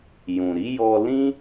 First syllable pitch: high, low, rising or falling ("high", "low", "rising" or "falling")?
low